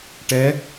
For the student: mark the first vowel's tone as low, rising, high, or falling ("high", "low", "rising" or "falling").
rising